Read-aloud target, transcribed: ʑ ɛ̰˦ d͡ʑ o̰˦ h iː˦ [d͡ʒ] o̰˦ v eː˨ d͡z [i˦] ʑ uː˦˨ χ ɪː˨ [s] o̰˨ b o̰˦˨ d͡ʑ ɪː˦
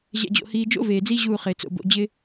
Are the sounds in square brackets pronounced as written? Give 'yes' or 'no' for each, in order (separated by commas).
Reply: yes, yes, no